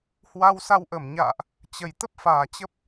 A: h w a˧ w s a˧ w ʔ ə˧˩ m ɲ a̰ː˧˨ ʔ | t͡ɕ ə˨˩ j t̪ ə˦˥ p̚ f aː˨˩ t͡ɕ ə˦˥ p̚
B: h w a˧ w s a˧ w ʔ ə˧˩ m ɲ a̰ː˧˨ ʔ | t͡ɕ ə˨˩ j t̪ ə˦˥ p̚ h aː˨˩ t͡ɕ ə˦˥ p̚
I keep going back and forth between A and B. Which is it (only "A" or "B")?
A